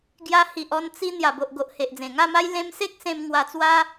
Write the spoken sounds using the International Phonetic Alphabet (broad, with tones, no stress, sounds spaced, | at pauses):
ɡ j a˧ h i˨ ʔ ɔ˧ n t͡s i˧ n̪ j a˨˩ b o˨ ʔ ɡ o˨ ʔ h e˨ ʔ d͡z ẽ˨˩ ŋ a˥˧ m a˦ j l ẽ˧ m s e˦ k̚ s ẽ˧ m ŋ w a˧ t͡s w a˦